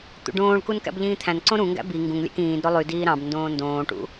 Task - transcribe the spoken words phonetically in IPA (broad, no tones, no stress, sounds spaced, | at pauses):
t̪ ṵ ɖ õː ɭ k u n k æ̰ b ʎ ĩː t̪ʰ æ̃ n ǀ õ ɾ ũ ŋ ɡ æ̰ b i ŋ ɡ ũ ŋ lʲ æ̰ k ĩː d ɾ o lˠ y d iː ɾ ɑ̃ b n d õː n d õː ʈ ṵ